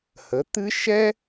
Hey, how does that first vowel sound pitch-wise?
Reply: rising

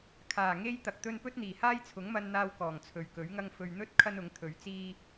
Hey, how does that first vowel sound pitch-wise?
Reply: low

